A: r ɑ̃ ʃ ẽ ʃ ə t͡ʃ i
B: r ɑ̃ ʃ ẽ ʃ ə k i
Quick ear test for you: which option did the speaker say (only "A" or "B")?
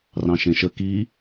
B